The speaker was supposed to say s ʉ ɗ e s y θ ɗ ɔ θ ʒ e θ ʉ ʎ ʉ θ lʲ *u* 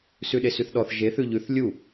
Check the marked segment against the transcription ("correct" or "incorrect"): correct